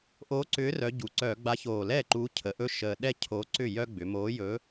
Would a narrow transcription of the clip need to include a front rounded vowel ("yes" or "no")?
yes